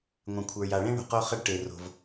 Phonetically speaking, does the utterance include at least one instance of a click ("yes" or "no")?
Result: no